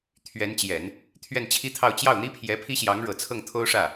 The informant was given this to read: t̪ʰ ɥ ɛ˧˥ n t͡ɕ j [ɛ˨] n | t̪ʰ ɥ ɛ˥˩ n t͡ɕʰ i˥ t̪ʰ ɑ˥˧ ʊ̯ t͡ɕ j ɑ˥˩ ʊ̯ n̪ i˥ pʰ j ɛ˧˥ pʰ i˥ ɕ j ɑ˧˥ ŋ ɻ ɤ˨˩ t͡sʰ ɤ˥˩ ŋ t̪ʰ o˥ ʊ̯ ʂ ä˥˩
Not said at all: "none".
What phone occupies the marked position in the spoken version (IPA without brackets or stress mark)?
ɛ˨˩˦